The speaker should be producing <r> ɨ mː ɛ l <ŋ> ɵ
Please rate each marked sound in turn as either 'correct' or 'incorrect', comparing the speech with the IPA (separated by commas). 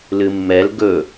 incorrect, incorrect